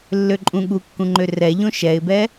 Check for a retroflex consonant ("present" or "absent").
absent